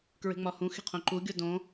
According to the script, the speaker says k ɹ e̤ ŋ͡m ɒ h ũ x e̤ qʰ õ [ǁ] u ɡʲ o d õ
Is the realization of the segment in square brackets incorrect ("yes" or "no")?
yes